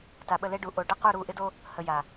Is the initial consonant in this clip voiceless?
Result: yes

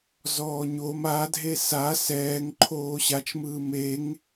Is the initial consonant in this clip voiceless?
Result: no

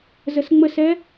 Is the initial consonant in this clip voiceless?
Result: no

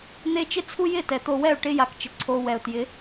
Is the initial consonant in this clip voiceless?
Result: no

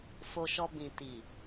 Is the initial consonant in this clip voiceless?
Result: yes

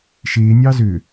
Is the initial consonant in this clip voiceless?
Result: yes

